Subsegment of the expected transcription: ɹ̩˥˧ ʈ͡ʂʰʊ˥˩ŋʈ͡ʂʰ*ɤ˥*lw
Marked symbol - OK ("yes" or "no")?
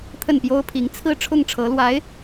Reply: no